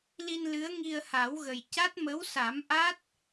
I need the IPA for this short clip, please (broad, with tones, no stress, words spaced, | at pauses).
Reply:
li˧nlɨ˧˥ə̯ ŋi˧ə̯ha˨˩˦wɣə˨˩j ca˦˥t̚mə˧˥wsa˨˩˦m ʔa˦˥t̚